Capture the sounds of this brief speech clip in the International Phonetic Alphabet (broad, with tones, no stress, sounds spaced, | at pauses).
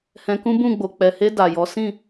h ɛ̃˧ k ũ˦ b ũ˦˨ ɡ͡b o˨ k͡p ɛ˨ h e˧ d a˨ j ɔ˨˦ s ĩ˦˨